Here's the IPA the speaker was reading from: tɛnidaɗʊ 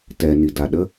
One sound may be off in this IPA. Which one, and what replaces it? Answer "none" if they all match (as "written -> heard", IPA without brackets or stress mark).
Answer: ʊ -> ə